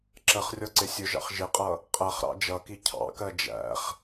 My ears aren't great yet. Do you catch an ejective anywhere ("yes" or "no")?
yes